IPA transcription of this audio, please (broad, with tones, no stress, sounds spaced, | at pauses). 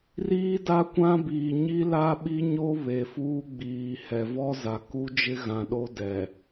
r iː˦ d a˦ kʷ ã˦ b iː˨ ɲ i˦ l a˦ ɓ i˦ ɲ o˦ β e˨ f uː˦ ɡ͡b iː˨ h ɛ˨ v ɔ˦ z a˨ k u˦ d͡ʒ ɪ˦ ɣ ã˨ ɗ o˦ d ɛ˨